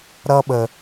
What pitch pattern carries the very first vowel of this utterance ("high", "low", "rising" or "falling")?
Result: low